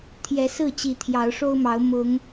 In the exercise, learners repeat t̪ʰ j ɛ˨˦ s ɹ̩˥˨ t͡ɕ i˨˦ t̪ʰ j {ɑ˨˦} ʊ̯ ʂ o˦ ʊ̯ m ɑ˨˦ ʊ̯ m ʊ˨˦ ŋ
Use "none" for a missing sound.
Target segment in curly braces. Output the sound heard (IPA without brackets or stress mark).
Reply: ɑ˨˦